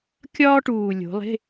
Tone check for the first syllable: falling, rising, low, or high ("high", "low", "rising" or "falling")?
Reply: high